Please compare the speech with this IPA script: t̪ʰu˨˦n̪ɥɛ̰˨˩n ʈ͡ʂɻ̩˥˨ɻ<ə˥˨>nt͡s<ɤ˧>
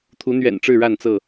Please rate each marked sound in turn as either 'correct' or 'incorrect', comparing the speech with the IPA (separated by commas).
incorrect, incorrect